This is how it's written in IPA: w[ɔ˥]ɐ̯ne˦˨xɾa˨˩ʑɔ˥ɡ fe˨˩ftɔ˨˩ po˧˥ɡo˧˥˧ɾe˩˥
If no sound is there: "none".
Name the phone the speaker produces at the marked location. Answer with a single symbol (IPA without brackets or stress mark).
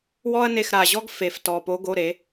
ɔ˥